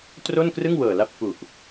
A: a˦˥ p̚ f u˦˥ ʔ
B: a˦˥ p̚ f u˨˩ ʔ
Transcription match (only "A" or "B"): B